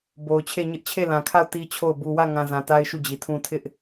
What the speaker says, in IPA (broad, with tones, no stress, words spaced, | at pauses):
bo˨ʊ̯t͡ɕʰe˦˨ ɲɪ˦ʔ t͡ɕʰe˦˨lã˨kʰa˦˨ʊ̯ ti˦t͡ɕʰo˦˨ʊ̯ bu˨wä˦˨ŋã˨ zã˨ta˦ɪ̯ ʃu˦˨d͡ʑi˨tʰũ˦ tʰɪ˦ʔ